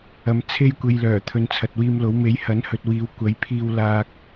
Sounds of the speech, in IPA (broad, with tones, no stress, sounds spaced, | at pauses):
ɐ˨ m t͡sʰ e˧ j kʷ e˨ j l œː˨˩ t̪ʰ ɵ˨ n t͡sʰ ɐ˨ t̚ w iː˧ m l o˨˥ w m e˨˥ j h ɐ˨˥ n h ɵ˨ t̚ w iː˨˧ w kʷ ɐ˨˥ j pʰ iː˧ w l aː˧ k̚